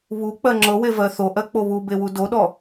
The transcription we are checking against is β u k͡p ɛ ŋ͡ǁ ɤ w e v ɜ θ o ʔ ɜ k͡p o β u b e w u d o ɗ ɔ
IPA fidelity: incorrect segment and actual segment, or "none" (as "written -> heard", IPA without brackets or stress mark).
ɛ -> ɜ